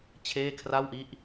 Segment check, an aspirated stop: present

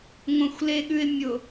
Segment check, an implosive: present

